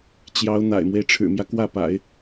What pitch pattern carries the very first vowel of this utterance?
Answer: rising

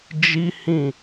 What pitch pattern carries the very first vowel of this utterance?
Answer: high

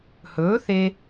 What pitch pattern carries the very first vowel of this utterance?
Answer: rising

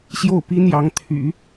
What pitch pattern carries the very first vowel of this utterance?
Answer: falling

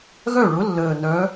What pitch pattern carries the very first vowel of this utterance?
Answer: falling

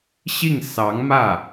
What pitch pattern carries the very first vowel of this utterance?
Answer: falling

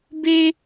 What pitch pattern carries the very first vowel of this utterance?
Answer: high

